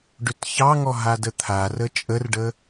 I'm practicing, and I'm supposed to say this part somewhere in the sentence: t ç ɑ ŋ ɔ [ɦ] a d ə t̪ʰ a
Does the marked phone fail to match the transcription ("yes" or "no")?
no